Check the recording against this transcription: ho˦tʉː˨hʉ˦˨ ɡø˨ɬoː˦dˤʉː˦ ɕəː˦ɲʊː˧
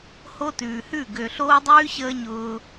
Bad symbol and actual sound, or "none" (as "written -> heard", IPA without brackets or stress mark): none